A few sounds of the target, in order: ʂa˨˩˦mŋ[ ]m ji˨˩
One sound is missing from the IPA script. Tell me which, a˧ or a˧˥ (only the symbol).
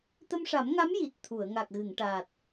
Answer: a˧˥